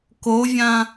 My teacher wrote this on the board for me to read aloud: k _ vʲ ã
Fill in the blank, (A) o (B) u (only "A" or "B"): A